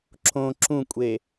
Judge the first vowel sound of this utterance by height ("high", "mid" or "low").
mid